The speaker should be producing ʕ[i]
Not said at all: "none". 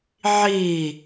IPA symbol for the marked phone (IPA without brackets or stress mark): i